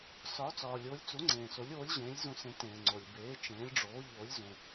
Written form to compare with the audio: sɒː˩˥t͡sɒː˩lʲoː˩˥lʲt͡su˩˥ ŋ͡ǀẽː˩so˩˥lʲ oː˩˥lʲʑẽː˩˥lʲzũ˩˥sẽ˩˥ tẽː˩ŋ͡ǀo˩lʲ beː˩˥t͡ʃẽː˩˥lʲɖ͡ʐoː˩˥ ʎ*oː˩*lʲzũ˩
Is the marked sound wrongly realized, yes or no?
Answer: yes